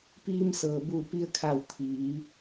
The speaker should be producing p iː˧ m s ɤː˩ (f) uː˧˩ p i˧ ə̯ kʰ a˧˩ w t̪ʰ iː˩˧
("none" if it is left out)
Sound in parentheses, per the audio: b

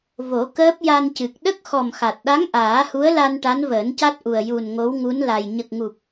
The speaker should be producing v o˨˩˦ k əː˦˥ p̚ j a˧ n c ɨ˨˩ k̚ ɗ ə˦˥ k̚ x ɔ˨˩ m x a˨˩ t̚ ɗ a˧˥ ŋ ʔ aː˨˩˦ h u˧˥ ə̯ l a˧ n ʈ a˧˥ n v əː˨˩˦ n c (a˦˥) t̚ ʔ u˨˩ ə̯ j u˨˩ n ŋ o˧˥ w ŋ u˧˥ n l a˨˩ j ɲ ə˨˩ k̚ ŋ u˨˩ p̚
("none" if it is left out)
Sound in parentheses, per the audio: a˦˥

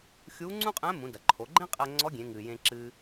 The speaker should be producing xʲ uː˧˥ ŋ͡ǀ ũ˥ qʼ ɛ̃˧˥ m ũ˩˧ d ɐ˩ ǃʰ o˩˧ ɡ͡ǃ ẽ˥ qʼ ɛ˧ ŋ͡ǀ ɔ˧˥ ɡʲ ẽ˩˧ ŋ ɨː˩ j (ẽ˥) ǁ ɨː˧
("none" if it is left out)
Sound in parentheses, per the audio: ẽ˧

